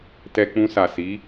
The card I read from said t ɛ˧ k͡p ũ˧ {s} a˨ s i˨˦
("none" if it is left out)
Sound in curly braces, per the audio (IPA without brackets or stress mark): s